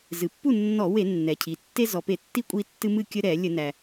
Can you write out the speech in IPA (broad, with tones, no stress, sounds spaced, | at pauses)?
z ɨ˩ pː u˥˨ nː ɔ˧˩˧ w e˧˩˧ nː ɛ˩ cʰ i˩ tː e˦ z ɔ˩ p e˧˩˧ tː i˥˨ kʷʼ i˦ tː ɨ˦ m ɨ˥˨ kʲ ə˦ ɾ ɛ˧˩˧ lʲ ə˧˩˧ n æ˩